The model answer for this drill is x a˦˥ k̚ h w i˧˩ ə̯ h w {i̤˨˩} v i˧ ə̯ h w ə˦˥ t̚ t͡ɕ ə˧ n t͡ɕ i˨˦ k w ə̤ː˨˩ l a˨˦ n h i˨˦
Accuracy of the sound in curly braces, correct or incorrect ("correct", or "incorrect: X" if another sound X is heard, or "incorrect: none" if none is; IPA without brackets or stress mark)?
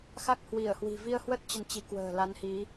correct